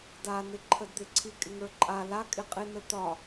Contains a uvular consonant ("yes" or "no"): yes